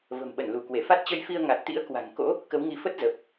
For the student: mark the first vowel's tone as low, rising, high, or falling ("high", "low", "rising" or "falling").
low